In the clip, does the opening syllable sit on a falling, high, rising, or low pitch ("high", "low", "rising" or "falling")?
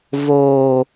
low